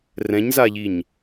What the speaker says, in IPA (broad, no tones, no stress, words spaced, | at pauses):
rɛ̃ɲzaʎiɲ